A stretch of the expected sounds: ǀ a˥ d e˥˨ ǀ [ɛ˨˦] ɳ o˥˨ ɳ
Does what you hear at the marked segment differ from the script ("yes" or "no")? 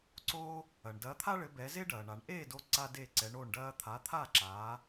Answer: no